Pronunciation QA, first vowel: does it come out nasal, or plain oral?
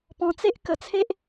nasal